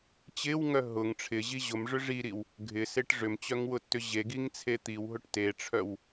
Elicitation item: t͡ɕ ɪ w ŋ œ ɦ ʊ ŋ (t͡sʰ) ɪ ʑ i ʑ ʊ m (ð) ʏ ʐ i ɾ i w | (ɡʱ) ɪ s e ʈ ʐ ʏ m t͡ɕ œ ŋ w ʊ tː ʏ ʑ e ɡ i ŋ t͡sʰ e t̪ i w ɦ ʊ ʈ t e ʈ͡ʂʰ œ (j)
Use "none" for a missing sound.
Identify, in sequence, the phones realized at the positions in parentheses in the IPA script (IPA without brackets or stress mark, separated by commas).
ʈ͡ʂʰ, ʐ, ɡʱ, w